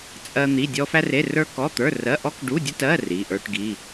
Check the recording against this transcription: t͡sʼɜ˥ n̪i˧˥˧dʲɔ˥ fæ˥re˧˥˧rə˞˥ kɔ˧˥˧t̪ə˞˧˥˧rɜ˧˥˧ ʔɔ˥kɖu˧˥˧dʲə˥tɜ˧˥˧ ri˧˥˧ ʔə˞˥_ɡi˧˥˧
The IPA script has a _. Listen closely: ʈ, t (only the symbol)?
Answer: ʈ